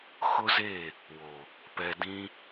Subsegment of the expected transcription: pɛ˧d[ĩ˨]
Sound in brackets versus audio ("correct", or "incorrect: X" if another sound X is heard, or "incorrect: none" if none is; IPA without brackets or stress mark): incorrect: ĩ˦